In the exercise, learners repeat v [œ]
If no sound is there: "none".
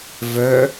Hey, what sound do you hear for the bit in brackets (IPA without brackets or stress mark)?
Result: œ